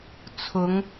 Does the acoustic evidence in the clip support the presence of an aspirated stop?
yes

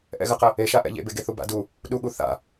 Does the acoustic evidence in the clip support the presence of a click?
no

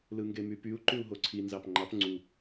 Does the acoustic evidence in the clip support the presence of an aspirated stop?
yes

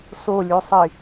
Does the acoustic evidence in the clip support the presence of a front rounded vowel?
yes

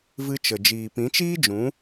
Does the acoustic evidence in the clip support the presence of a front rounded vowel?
no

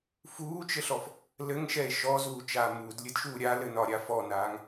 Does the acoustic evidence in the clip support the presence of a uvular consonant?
no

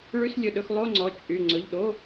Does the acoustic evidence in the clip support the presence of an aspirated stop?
no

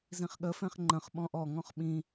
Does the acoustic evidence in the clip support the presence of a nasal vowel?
yes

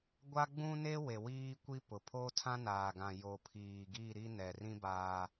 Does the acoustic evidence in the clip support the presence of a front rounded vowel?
no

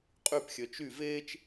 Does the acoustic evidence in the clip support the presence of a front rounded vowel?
yes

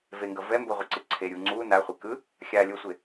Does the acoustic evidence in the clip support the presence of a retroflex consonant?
no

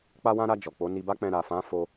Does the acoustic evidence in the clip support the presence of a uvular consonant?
no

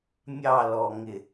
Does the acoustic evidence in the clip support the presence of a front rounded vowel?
no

